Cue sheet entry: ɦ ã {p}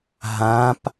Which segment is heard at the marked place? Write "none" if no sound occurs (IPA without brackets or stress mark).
p